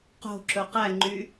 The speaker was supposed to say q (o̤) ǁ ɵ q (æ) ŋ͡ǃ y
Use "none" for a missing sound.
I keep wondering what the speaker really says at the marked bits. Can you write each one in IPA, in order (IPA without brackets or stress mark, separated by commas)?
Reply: o̤, æ